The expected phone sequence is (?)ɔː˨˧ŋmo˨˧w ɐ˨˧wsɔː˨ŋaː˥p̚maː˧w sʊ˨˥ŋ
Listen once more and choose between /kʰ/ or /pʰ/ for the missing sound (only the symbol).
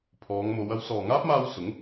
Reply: pʰ